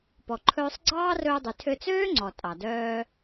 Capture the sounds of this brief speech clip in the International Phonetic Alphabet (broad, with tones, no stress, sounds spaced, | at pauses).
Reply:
p ɔ˩ ǃʰ ɵː˧ sˤ ɡ͡ǀ ɑː˥ r ɵː˧ dˤ y˩ tʰ ø˧ t͡s øː˥ ŋ͡ǀ ɔ˩ tʼ ɑ˩ d œː˧